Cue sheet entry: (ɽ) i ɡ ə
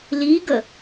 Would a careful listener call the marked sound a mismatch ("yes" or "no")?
yes